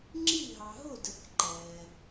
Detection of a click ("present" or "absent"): present